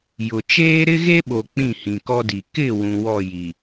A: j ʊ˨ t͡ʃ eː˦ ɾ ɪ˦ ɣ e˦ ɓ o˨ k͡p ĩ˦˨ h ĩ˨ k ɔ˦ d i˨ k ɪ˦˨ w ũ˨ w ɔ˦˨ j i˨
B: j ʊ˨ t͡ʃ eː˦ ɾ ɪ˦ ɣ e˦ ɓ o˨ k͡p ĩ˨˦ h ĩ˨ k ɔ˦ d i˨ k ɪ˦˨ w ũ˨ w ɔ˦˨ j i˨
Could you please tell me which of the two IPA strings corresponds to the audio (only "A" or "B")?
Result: A